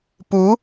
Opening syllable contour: rising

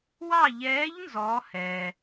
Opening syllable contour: falling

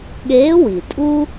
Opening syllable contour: rising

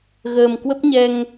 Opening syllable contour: low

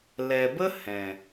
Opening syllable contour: low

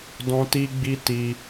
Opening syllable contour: high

